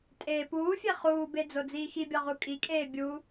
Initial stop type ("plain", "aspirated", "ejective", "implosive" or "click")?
ejective